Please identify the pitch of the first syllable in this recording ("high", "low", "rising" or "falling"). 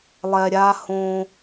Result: low